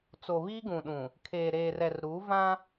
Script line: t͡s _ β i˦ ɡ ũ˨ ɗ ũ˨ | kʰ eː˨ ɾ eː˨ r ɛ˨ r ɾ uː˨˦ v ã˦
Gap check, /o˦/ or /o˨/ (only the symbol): o˨